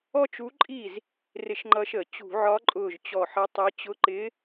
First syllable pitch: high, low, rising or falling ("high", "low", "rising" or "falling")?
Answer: high